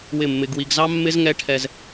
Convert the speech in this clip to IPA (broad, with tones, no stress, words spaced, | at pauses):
wɪ˦˨mːɪ˦ɡwi˦ɡ zɑ˦mːɪ˦z ŋɛ˦ʈʰɛ˦z